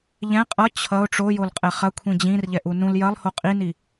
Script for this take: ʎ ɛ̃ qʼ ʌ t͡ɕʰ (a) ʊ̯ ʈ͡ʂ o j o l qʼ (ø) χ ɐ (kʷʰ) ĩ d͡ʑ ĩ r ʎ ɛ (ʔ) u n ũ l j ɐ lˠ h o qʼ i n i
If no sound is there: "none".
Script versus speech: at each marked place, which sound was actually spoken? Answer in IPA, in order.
ʌ, ɛ, kʷʰ, ʔ

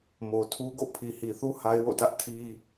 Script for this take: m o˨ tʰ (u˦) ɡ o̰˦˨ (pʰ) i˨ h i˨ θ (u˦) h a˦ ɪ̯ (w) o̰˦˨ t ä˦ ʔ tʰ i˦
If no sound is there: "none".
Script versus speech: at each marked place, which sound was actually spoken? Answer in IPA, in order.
u˦, pʰ, u˦, w

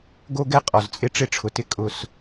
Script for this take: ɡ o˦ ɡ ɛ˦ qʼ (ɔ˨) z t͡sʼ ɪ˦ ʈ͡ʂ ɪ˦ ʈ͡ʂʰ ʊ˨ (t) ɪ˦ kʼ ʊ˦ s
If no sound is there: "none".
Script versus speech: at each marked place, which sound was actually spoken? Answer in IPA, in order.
ɔ˨, t

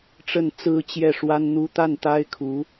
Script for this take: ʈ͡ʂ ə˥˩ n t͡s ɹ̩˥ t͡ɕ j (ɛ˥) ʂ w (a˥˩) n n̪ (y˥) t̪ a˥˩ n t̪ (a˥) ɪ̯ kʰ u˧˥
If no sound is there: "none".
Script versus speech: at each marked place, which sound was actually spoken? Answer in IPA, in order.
ɛ˥˩, a˥, u˥, a˥

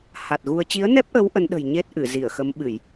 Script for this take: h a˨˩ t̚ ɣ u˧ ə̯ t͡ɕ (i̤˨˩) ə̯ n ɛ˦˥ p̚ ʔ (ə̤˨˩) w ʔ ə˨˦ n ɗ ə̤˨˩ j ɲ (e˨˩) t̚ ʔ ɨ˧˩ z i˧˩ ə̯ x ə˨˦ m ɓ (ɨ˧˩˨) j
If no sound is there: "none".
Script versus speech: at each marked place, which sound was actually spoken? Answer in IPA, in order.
i˨˦, ə˨˦, e˦˥, ɨ˧˩˨

